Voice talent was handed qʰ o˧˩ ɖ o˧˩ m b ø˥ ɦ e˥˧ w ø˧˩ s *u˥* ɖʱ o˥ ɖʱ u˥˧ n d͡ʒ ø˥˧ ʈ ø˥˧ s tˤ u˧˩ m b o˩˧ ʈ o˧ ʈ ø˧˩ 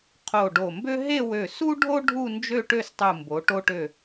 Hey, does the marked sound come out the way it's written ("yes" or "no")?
yes